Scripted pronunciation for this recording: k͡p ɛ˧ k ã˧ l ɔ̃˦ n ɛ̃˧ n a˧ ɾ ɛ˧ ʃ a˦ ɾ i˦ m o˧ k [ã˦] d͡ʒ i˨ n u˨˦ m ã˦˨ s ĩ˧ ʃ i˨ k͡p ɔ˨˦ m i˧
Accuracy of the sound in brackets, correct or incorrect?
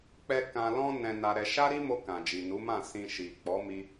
incorrect